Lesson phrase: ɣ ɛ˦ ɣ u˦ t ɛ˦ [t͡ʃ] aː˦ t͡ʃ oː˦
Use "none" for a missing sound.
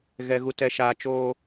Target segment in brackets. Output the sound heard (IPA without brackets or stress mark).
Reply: ʃ